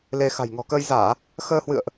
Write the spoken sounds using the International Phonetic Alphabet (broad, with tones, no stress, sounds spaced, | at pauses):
l e˧ x a̤˨˩ j ŋ ɔ̤˨˩ k əː˧ j z aː˧˩˨ | x əː˧ h w ɨ̰˧˨ ə̯ ʔ